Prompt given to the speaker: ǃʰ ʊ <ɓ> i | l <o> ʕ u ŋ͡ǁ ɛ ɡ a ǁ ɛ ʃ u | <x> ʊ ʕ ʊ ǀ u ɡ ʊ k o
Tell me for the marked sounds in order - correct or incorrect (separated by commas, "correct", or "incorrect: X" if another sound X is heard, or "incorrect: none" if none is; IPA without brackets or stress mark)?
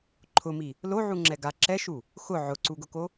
incorrect: m, correct, correct